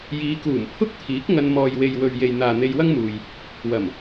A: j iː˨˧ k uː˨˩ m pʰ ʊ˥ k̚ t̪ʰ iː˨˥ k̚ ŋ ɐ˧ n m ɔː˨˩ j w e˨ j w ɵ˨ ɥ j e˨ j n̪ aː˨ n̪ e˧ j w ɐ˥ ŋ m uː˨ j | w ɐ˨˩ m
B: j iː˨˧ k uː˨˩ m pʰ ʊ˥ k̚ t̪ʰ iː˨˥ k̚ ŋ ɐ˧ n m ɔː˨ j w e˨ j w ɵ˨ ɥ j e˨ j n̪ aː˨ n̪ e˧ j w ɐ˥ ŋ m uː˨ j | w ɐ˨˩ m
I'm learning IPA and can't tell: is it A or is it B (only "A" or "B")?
B